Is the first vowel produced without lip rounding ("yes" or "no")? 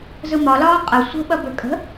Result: yes